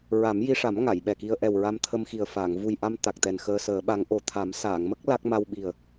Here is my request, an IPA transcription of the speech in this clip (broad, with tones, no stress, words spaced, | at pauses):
ɹa˨˩˦mji˧ʂa˨˩˦m ŋa˨˩˨jɓɛ˨˩ki˧ə̯ ʔɛ˨˩w ɹa˧mt̪ʰə˧mxi˨˩ə̯ faː˨˩˨ŋ vu˨˩jʔa˧m t̪a˨˩k̚t̪ɛ˨˩n xəː˧səː˨˩˦ɓa˧˥ŋ ʔo˨˩t̪ʰa˨˩˦m saː˨˩˨ŋmə˦˥k̚ la˦˥k̚ ma˧wɓi˨˩ə̯